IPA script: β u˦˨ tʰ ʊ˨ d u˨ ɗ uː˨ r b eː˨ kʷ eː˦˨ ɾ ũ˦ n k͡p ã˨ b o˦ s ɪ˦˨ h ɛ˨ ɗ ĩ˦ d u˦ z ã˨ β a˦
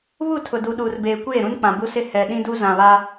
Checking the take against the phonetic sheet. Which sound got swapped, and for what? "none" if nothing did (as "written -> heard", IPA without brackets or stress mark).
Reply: o˦ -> u˦